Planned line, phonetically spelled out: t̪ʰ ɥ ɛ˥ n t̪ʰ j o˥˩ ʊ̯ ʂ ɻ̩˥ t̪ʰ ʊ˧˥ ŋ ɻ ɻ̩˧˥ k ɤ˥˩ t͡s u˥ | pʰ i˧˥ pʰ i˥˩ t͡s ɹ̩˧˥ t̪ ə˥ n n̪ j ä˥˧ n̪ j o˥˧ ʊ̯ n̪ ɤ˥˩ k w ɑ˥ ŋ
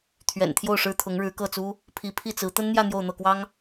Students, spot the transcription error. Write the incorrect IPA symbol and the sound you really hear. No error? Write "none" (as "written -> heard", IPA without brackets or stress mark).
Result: ɛ˥ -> ɛ̰˨˩